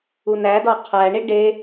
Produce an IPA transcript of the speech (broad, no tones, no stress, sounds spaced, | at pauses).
u n æ d ɒ qʰ æ ɳ i ɖ e